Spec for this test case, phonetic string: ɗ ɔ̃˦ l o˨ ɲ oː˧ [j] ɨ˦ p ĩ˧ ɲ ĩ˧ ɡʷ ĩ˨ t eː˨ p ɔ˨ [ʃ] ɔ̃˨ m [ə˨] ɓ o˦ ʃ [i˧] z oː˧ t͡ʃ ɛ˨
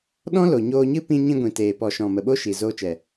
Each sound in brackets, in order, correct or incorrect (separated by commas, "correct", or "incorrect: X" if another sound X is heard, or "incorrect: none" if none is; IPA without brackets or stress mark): incorrect: ɲ, correct, correct, incorrect: i˨